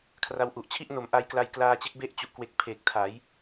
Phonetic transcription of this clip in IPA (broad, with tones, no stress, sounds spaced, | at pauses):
kʰ r a˦˥ w ʔ u˨˩ ʔ t͡ɕʰ i˥˩ ʔ n o˩˦ m ʔ a˧ j k l a˧ j k l aː˧ t͡ɕ e˦˥ k̚ b e˦˥ ʔ t͡ɕ u˨˩ ʔ k w e˨˩ k̚ pʰ e˨˩ k̚ tʰ a˩˦ j